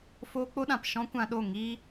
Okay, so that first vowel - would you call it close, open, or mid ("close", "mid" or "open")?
mid